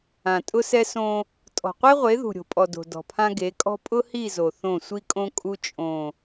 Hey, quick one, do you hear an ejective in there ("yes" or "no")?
yes